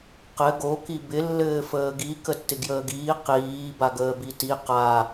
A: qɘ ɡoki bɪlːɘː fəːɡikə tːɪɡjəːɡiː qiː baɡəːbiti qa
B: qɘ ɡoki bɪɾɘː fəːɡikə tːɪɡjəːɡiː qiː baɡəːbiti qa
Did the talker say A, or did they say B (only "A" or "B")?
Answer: A